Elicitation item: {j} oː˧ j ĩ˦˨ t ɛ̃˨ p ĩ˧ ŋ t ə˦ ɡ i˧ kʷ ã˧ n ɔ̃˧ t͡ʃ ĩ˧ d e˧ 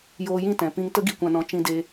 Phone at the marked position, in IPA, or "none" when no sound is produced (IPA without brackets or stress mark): j